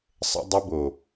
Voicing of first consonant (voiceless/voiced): voiceless